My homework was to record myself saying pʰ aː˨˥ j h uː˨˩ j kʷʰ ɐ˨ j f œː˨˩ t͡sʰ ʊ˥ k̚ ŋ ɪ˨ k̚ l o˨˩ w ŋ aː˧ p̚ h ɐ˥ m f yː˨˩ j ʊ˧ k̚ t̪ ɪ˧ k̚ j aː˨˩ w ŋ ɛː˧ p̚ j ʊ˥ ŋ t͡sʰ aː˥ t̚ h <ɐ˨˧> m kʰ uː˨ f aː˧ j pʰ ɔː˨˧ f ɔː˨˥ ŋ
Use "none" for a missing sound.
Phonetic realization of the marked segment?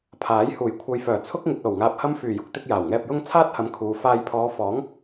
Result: ɐ˨˧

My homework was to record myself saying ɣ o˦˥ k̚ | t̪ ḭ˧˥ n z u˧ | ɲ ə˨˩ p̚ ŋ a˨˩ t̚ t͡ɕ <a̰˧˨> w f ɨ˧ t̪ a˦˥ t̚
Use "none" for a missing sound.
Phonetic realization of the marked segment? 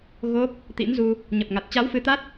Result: a˨˦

